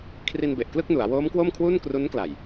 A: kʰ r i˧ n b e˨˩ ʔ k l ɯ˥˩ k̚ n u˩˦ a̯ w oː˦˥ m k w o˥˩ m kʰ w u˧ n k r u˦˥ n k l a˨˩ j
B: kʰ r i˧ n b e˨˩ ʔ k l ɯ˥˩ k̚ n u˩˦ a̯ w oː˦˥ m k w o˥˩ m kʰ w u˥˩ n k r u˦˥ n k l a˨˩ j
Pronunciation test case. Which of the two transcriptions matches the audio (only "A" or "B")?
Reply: B